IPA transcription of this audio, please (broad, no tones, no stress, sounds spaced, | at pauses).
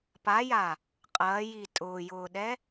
p a j a | qʼ ɐː j i tʼ ʊː j ʊː ɗ ɛ